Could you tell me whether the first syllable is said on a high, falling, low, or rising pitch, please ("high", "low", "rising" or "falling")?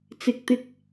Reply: rising